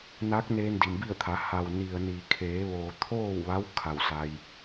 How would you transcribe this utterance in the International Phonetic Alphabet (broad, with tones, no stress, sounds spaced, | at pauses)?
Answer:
n a˧˥ k̚ n eː˧ n d i˩ m b i˥˨ ə̯ t̪ʰ a˩˧ h a˩ w n i˩ ə̯ n i˩ kʰ eː˩˧ ʋ oː˩ t̪ʰ oː˥˨ w ʋ a˧˥ w kʰ a˧˩ w s a˧ j